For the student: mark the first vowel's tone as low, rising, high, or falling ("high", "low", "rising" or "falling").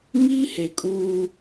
high